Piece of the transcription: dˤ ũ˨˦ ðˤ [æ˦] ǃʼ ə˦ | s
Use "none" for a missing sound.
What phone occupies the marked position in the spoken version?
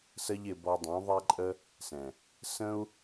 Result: æ˦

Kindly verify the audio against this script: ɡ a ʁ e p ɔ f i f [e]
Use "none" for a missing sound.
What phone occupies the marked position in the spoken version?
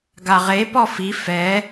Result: ɛ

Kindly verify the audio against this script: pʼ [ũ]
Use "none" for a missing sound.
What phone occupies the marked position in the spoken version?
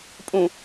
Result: ũ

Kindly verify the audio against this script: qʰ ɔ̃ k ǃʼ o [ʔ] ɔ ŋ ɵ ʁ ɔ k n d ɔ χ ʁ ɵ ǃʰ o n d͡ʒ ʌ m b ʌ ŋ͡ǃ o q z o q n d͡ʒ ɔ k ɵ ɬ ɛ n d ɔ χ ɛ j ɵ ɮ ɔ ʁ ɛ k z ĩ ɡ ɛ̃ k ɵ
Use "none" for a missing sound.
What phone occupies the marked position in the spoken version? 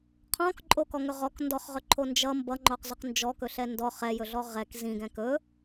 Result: k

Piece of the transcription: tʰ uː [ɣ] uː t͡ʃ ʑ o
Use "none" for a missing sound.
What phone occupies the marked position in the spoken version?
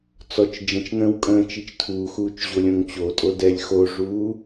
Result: x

